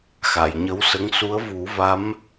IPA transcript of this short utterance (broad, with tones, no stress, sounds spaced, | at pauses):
x a˨˩˨ j ɲ ə˧˥ w s ə˧˥ ŋ s u˧˥ ə̯ v u˨˩˦ v a˧˥ m